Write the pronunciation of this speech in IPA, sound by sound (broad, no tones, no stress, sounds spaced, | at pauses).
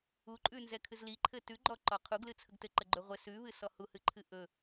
u ǃʼ ʉ n z ɛ kʰ ɨ z l i ǃʰ ɘ t ʉ ɡ͡ǃ ɔ ǃ ɔ qʰ u ɡ l ɨ t͡sʰ ə ɡ t ɘ ǃ ə ɡ͡ǃ ɵ ʁʷ ɘ s ʉ β ɨ s ɔ h u h ɨ ǃʰ ɨ ʔ ɵ